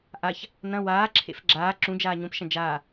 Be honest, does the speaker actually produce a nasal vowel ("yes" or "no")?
yes